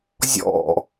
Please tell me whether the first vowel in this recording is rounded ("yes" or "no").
yes